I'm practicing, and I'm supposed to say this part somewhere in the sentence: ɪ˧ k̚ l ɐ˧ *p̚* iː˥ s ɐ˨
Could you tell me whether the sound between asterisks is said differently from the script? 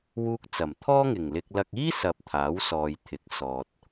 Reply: yes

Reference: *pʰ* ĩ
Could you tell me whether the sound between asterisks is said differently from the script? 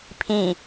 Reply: no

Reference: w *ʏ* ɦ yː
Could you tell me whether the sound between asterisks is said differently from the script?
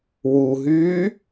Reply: yes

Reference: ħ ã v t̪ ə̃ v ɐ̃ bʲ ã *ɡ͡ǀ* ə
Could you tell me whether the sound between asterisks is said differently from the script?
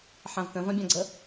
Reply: no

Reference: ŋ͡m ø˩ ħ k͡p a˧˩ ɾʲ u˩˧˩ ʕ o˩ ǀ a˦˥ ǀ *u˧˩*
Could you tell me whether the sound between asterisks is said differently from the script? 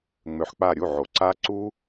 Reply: yes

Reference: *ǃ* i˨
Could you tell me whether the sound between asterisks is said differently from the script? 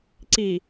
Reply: yes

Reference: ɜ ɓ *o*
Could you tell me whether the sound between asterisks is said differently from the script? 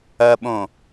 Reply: yes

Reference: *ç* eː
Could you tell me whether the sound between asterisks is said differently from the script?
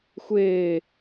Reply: yes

